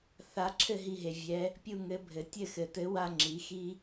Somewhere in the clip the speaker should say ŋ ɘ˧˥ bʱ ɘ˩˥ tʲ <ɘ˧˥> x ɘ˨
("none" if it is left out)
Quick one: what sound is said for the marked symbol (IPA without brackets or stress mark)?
ɘ˥˩